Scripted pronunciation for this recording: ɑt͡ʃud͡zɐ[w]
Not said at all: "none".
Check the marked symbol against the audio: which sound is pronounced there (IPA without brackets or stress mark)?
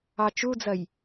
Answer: j